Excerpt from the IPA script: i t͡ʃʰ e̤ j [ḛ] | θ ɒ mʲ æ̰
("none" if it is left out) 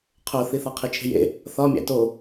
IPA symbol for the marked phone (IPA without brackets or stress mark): ḛ